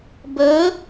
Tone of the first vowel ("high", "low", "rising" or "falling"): rising